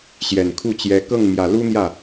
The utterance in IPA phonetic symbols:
ɕjɛ˨˩nkʰu˥˩t͡ɕjɛ˧˥ kɤ˥˩ŋmjä˨˩ lu˥n̪jä˥˩

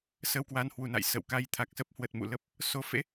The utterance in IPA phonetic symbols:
sə˧wkwa˧nhwu˨˩na̰˧˨j sə̰˧˨wka˧j t̪ʰa˨˩k̚sə˦˥p̚hwə˨˩t̚ mṵ˧˨lə˦˥p̚ | so˨˦fḛ˧˥

